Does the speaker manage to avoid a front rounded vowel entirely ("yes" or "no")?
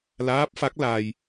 yes